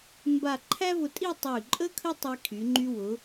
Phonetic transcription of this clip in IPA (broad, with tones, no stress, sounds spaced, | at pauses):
m b a˥˧ ǃʰ æ˥ v ʊ˧ tʼ i˥˧ tˤ y˧˩ ǃʼ ə˥ kʰ ə˥ tˤ i˧ kʰ y˩˧ ŋ͡ǃ y˧ w ʊ˩˧